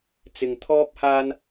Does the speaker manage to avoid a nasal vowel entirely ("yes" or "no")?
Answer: yes